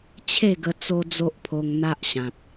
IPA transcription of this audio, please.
t͡ɕʰ e˥˧ ɡ ə˧ t͡s o˦ d͡z o˦ ʔ pʰ o˧ ŋ n̪ a˦ ʔ ɕ ã˨ t̚

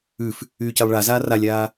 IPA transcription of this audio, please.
ʉ f | yː c ɛ lˠ ɭ a z aː r a lʲ aː

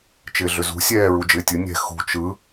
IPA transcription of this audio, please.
t͡ʃ ɪː ɮ ʏ z ṳ sʲ ɛː ɹ u d͡ʒ ɪː tʲ ɯ nʲ ɛ̤ x ṳ t͡ʃ ɯ

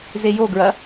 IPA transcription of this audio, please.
z e j o ɡ ɹ ɐ

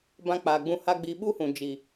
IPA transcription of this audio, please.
b ã˧ k͡p aː˨ ɡ͡b ũ˧ h a˧ ɡ͡b iː˨ ɓ u˦ h ũ˨ d͡ʒ iː˨

